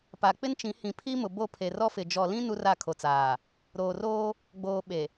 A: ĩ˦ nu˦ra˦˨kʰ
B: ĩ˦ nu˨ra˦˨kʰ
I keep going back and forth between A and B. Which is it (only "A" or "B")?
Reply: A